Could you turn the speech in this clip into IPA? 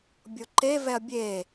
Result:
bʲoǃe vɛɐ̯bʲeː

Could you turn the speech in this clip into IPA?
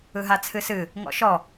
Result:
ɯɦat͡sʰɨsɨ | ŋɔ̰ʃɔ

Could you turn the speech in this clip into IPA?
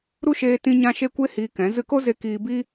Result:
ɾu˦ʃeː˧ tĩ˧ɲã˧ ʃe˧kʷe˧ hiː˧kɛ̃˨˦ zɨ˧ko˦ze˧ kiː˧ biː˦

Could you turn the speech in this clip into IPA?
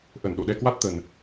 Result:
ʔə˧˩nɗo̰˧˨ɗɛ˧kwa˦˥t̚ t̪ə˨˩n

